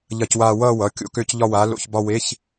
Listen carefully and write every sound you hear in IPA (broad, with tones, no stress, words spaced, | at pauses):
ʎɐ˥˧cwaː˥˧ wʌː˥˧wʌ˩˧˩ kʲo̰˥˧kø˥˧c ʎɒ˥˧waː˨˥lo̰˧˥˧çbɒ˥˧ we˧˥˧ç